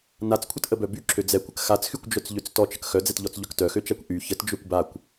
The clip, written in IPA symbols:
n a t͡s kʷʰ ə t ʔ ə b œ b y ǁʰ ø d͡z ɛ kʷ ə k x a t͡s x y kʷ d͡ʒ œ t͡s ʎ ø t͡s t ɔ t͡ʃ ə k x œ d͡z ɛ t ʎ ɔ t͡s ʎ œ k t œ x ø t͡ʃ a kʷ ʔ y ç ə t d͡ʒ ø kʷ b a kʷ

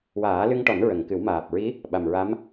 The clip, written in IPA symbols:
w aː˨˩˦ l ɨ˧ ŋ ʈ ɔ˨˩˦ n ɹ ə˨˩˨ ŋ k ɨ˨˩˦ w m aː˨˩ p̚ ɹ i˧˥ | ɓ a˨˩ m ɹ a˧˥ m

